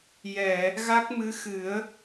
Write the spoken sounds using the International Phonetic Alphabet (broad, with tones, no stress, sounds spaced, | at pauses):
j ɛ˨˩˨ | ɣ a˦˥ k̚ m ɨ˧˥ x ɨ˨˩˦ ə̯